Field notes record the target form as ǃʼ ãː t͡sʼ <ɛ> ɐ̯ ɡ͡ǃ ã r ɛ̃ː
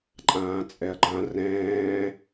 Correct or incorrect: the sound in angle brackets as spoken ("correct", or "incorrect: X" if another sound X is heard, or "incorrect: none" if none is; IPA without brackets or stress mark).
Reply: correct